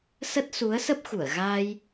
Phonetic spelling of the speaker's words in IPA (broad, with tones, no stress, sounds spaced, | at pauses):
s ə˦˥ t̚ s u˨˦ ə̯ s ə˦˥ p̚ x u˧˩ ə̯ ɣ aː˧ j